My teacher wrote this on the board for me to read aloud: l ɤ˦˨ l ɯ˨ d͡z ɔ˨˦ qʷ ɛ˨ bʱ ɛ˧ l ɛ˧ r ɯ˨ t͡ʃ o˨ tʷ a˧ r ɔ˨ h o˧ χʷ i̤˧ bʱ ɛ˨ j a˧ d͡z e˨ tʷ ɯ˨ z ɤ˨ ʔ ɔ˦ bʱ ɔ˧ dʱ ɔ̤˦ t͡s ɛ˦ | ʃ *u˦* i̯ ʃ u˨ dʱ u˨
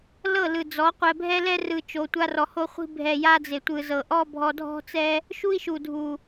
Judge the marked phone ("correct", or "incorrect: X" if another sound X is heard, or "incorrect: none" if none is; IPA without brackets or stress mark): correct